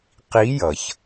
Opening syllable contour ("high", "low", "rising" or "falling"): rising